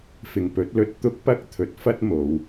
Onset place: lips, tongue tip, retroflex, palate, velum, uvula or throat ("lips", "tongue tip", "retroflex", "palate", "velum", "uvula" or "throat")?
lips